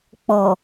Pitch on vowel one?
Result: low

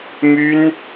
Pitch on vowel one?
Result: high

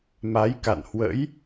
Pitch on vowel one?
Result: rising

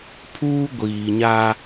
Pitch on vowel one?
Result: high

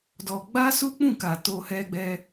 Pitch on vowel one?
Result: low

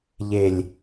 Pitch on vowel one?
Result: low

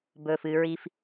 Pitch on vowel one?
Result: low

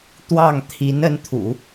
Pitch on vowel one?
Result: falling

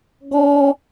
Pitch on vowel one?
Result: high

